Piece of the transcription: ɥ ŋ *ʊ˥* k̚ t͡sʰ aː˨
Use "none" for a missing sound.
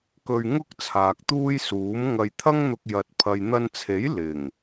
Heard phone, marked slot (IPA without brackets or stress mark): ʊ˥